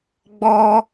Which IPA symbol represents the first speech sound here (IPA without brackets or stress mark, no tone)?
ɡ͡b